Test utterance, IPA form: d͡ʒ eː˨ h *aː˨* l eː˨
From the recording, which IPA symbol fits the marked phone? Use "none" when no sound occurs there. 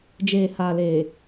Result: aː˨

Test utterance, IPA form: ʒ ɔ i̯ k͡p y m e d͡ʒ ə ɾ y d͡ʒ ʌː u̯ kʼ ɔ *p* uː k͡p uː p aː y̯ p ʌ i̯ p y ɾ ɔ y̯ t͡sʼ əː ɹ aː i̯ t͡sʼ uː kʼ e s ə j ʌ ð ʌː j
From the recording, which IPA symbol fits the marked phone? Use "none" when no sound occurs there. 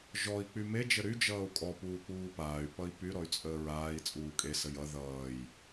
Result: p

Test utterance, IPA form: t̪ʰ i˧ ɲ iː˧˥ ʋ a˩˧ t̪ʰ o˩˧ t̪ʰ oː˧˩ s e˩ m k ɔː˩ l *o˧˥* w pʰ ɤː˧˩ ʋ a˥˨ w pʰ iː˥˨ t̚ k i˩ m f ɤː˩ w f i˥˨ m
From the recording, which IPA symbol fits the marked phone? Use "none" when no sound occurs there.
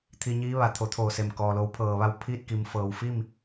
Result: o˧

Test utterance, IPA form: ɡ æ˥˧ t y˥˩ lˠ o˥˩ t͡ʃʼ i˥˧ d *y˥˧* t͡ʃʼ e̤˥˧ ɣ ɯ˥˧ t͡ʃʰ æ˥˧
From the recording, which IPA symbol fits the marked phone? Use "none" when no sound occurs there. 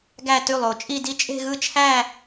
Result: i˥˧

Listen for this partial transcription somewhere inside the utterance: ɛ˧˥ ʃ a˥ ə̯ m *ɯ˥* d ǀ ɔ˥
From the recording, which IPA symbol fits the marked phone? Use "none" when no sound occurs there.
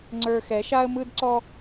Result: ɯ˥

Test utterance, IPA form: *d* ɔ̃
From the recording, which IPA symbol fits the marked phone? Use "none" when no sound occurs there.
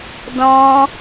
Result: d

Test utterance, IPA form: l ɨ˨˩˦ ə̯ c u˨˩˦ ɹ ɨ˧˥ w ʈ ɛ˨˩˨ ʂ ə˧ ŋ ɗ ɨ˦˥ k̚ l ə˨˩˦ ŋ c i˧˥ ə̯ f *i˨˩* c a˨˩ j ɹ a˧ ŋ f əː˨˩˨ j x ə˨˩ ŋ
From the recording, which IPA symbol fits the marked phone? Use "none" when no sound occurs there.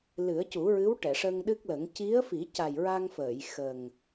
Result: i˨˩˦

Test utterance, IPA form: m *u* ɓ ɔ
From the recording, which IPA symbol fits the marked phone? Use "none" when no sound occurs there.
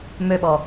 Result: ø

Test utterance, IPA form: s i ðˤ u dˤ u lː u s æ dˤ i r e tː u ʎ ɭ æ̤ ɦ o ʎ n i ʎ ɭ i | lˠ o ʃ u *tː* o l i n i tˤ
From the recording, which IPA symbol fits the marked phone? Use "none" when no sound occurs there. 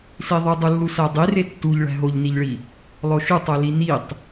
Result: tˤ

